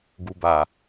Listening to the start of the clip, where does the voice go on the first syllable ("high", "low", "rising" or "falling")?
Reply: low